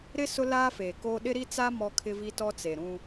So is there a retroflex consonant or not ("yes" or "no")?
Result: no